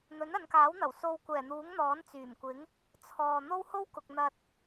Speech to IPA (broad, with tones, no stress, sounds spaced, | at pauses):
n̪ ɵ˨˥ n ɐ˨˧ n k aː˨˥ w n̪ ɐ˨˩ w s o˧ w kʷ ɛː˨˩ n̪ uː˨˥ ŋ n̪ ɔː˨˥ n t͡s yː˨˩ m kʷ ɪ˨˥ ŋ | t͡sʰ ɔː˨ n̪ o˥ w h o˥ w k ʊ˨ k̚ n̪ ɐ˧ t̚